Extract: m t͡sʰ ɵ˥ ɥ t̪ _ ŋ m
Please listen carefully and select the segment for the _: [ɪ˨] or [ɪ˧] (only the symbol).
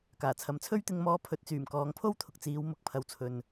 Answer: ɪ˧